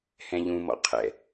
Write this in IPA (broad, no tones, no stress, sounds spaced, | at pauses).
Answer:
h ɛ̃ ʎ ũ m ɔ̰ qʰ ɛ̰